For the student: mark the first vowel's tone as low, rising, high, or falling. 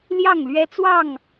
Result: falling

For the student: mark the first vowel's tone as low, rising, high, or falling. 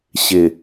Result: low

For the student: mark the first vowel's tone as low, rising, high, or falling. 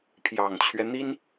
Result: low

